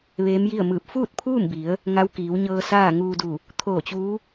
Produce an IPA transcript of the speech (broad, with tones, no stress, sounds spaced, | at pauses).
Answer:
ʋ eː˧˥ m j i˥˨ ə̯ m ɯː˧˩ p̚ f uː˥˨ t̚ pʰ uː˥˨ m b i˩˧ ə̯ | ŋ a˧˥ w k iː˩˧ w ɲ ɤː˧ s aː˥˨ ŋ uː˧ d u˧˩ | t̪ʰ oː˧˩ t͡ɕ uː˧˥